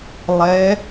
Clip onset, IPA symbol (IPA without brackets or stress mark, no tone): lˠ